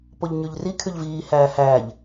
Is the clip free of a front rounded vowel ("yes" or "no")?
no